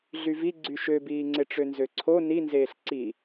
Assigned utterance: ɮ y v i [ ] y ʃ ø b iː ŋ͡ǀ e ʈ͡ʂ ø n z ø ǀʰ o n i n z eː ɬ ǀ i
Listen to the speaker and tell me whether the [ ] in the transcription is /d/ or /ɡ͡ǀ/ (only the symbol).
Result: ɡ͡ǀ